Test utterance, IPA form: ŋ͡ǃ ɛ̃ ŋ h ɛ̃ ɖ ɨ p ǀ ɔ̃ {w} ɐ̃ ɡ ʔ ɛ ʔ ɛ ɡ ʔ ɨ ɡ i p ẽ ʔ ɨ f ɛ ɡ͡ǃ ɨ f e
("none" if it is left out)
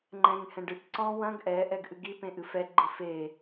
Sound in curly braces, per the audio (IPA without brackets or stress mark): w